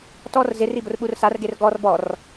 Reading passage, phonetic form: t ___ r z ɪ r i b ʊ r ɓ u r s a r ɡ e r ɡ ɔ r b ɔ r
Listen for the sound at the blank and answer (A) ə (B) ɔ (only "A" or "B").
B